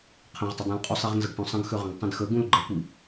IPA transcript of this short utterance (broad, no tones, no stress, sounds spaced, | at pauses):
qʰ ə̃ ʁ tˤ ə dˤ ũ l qʼ u sˤ i ʁ n z ə ɡ ʈ ũ sˤ ə̃ ɡ x ø ʁ ə̃ ɡ tˤ ə̃ d x ə ɡ ũ l ɡ͡ǃ ə kʷ i